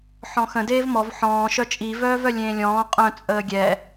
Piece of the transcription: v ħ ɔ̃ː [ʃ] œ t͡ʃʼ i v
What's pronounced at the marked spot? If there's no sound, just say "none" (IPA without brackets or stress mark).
ʃ